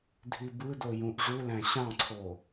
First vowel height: high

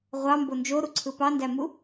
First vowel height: low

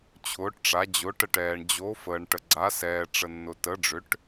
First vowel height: high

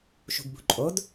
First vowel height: high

